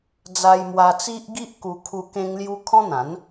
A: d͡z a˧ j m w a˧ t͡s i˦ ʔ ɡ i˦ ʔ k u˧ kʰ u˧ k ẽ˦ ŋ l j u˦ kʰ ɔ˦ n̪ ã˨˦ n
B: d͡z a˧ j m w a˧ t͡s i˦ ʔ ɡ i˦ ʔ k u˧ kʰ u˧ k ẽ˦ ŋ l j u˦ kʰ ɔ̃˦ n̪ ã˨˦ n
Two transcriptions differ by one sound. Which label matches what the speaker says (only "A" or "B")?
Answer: B